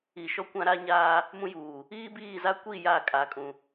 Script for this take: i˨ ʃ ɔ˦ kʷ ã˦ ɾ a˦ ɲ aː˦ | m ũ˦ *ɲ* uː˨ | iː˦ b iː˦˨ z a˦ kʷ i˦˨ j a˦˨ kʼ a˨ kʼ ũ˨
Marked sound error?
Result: yes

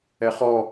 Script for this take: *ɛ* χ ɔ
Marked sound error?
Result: no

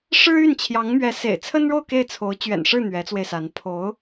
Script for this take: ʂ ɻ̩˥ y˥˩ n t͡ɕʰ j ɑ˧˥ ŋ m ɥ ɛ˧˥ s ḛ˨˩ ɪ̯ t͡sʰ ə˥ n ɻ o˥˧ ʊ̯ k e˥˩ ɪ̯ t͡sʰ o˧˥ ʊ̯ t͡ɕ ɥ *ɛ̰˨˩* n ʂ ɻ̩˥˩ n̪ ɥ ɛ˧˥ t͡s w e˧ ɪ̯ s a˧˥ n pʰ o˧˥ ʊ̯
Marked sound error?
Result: no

